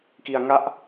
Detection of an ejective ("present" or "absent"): absent